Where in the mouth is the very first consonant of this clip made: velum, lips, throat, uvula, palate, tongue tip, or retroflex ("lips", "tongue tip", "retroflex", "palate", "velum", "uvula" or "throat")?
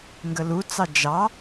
velum